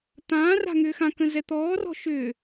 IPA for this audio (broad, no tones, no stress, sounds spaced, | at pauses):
t̪ ãː r a̤ ŋ ʏː x ã k ə̃ z ɛ t̪ ɔː r ɔ̤ ʃ ʏː